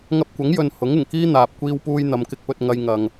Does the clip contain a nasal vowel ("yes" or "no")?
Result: no